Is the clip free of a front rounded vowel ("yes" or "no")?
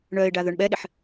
no